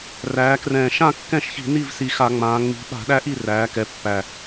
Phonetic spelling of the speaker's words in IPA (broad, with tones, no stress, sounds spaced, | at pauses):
r æː˩˧ k r ɛ̃ː˨˩ ʃ ã˥˩ kː ɛ̃˥˩ ʃ ç i̤˧˩˧ n i˥˩ v s i˨˩ x a˧˩˧ ŋ͡m ãː˩˧ ŋ͡m i̤˨˥ ɓ a̤˧˩˧ ɗ æ˦ ʔ i˥˩ r æː˩˧ k ɛ˩˧ pː æ˨˩